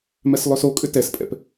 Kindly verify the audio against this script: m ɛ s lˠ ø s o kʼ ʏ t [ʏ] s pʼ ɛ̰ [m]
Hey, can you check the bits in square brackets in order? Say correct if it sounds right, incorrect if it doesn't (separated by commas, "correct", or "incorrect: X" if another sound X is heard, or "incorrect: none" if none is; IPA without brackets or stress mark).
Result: incorrect: ɛ, incorrect: p